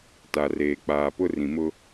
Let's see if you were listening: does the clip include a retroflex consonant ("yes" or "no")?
no